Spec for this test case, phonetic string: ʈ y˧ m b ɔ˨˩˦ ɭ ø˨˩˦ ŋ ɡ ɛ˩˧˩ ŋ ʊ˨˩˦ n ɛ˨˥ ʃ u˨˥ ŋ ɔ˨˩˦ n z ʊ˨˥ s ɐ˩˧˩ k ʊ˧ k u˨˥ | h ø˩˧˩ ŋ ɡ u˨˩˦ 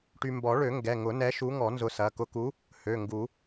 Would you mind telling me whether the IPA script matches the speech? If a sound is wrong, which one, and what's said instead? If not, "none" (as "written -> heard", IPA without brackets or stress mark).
none